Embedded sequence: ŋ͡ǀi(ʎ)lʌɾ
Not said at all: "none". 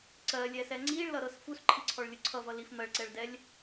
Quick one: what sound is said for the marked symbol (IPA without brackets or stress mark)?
ɭ